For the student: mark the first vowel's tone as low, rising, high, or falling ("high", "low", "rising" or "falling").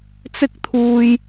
high